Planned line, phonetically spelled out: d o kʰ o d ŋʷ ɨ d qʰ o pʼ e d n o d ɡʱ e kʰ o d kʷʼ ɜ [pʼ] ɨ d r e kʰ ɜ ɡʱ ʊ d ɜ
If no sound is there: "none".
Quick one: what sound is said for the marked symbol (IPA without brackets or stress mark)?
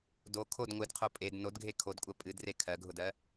pʼ